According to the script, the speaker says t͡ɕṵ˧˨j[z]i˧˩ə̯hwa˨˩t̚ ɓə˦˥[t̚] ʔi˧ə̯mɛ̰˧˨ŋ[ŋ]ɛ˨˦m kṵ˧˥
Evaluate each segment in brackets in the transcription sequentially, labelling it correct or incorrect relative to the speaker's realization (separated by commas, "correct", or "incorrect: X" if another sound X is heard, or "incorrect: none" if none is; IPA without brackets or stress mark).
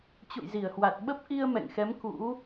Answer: correct, incorrect: p̚, incorrect: x